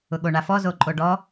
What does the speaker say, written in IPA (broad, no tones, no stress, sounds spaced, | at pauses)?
ʊ ɠ o ɳ a f ɔ z o ǃʼ o ɖ ɔ